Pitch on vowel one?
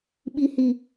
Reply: low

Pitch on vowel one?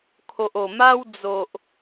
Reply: low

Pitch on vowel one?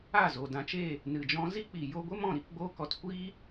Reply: falling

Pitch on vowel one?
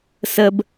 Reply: high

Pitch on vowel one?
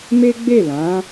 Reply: high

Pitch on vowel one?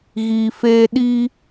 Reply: low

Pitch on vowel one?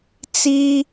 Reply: high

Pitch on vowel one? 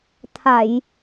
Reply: low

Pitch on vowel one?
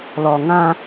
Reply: low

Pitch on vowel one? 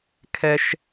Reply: high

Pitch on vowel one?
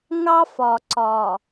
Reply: high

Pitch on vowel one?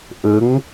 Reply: rising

